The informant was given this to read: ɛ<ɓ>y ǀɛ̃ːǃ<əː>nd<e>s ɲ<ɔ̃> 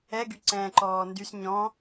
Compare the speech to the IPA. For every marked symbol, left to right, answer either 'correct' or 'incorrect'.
incorrect, incorrect, incorrect, correct

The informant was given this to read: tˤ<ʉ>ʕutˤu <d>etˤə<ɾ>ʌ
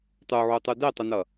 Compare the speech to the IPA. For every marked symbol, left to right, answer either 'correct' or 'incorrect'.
incorrect, correct, incorrect

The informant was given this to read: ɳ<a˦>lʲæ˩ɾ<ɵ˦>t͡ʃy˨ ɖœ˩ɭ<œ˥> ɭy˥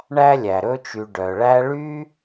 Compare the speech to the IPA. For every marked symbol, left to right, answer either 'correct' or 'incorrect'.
incorrect, correct, incorrect

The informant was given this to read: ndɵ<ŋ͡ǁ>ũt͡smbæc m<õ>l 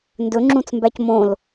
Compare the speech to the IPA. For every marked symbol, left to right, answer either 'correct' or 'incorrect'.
correct, correct

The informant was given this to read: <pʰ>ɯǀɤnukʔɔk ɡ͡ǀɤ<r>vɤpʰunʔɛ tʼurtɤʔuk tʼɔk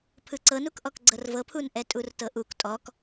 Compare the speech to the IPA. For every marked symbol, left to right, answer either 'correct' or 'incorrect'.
correct, correct

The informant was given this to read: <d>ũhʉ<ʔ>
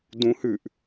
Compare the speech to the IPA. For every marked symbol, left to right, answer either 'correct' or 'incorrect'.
correct, correct

